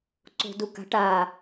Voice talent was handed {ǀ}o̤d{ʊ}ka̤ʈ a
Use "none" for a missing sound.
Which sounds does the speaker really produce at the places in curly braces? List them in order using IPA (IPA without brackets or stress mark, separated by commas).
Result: ǀ, u